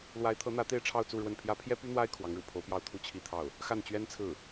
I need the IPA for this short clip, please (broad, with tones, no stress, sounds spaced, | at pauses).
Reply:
l w a˧˥ ɪ̯ t̪ʰ ɤ˧˥ n̪ ä˧˥ t̪ e˥˧ ɪ̯ ʈ͡ʂʰ ɑ˥˧ ʊ̯ t͡s u˥˧ ɻ w ə˥˩ n pʰ j ä˥ pʰ j ɛ˥ p y˥ n̪ w a˥ ɪ̯ kʰ w ɑ˧˥ ŋ ɻ ṵ˨˩ pʰ o˧˥ ʊ̯ p j ɑ˥˧ ʊ̯ t̪ʰ u˥˧ t͡ɕʰ i˥˧ t̪ʰ ɑ˥˩ ʊ̯ | x a˥˩ n t͡ɕ ɥ ɛ˥ n t͡sʰ ɹ̩˥˩